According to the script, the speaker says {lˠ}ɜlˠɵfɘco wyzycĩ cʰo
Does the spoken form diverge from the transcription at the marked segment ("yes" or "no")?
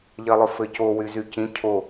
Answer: yes